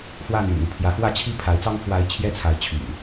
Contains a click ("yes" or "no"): no